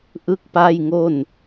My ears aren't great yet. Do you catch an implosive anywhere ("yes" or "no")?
no